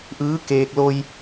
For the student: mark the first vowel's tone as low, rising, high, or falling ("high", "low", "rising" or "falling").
rising